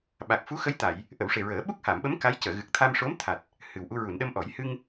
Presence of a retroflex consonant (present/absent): present